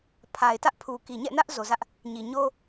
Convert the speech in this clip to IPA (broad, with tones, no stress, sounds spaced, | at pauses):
pʰ a˨ ɪ̯ t ä˦ ʔ pʰ u˨ k i˨ ɲ ɛ̰˦˨ n ä˦ ʔ z o˨ z ä˦ ʔ | ɲ i˨ ɲ o˦